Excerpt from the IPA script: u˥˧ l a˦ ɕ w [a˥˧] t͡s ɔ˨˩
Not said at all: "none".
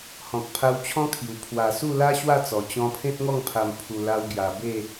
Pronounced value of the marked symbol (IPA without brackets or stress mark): a˥˧